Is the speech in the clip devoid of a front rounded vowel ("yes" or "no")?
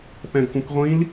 no